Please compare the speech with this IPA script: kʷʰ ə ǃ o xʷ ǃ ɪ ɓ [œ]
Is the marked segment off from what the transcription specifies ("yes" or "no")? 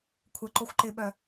no